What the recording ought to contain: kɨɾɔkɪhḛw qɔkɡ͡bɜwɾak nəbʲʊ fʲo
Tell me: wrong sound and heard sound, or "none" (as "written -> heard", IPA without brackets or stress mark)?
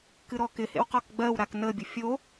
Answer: none